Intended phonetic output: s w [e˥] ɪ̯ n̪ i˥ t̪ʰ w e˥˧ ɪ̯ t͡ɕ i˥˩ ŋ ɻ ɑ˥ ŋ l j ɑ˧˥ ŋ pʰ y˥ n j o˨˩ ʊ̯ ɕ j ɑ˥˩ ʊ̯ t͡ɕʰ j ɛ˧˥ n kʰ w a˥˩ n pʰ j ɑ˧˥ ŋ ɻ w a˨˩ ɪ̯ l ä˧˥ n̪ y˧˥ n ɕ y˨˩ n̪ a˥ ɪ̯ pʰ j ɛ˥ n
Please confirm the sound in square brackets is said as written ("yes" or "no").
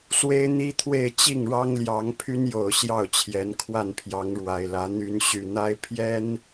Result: yes